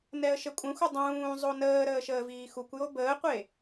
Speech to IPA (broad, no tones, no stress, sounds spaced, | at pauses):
n ɛ ə̯ ʃ ə kʷʼ ə̃ xʷ ɨ dˤ ũː zˤ o n əː ɾ əː ʃ əː v iː x u kʷ j o b əː qʷ e